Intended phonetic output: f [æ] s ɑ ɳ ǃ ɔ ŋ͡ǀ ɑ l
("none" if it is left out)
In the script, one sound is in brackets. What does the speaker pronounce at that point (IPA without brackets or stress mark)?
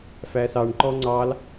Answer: æ